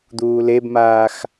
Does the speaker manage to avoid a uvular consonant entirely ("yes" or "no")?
yes